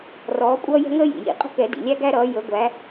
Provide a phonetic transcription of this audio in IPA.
r ɔː˨˦ kʷʼ ʌː˦ j ɛ̤˦ ŋ əː˦ j ḭ˩ j ḭ˨˩˦ qʼ ə̤˦ k ɛ˨˩˦ d ḭ˩ lʲ æ˦ ɡ æ˦ ɾ ʌː˨˦ j ə˨˦ ɡʷ æ˨˦

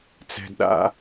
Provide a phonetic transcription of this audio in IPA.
t͡s ɛ̤˨ d ɗ a̰˦

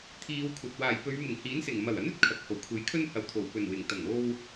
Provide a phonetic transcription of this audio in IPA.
t̪ʰ iː˨˧ w kʷʰ ɐ˨ t̚ w aː˨˩ j p ɵ˨˧ ɥ m ɪ˨˩ ŋ h iː˨˥ n s ɪ˨˩ ŋ m ɐ˨˩ w ɐ˨˥ n ɵ˨˥ t̚ kʰ ɐ˨ k̚ h o˨˩ w kʷʰ e˨˥ j kʰ ɵ˥ n h ɐ˨˧ w t̪ʰ o˨˩ w p ɵ˨˩ n w ɪ˨˩ ŋ t̪ ɐ˨˩ ŋ o˧ w

